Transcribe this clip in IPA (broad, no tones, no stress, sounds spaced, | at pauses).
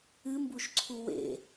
ɨ m b u ʃ ǀʰ u w ḛ